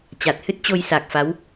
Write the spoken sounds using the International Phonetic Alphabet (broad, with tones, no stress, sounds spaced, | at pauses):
t͡ɕ a˨˩ t̚ h ɨ˦˥ t̚ t͡ɕ o˧ j s a˨˩ k̚ f a˨˦ w